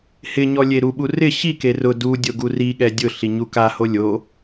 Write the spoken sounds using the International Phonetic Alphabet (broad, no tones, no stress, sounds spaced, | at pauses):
h ɪ ɲ ɔ lʲ e ɾ u ɓ u r ɪ ɕ i k e r ʊ d u dʲ o ɡ u r i ɠ ɛ dʲ ʊ ɬ i ɲ u k a h o lʲ o